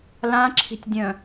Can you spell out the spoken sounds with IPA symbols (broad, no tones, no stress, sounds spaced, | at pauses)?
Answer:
l ã ǁʰ i̤ tʲ dʲ œ̃